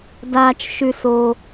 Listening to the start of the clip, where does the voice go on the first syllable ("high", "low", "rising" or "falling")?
low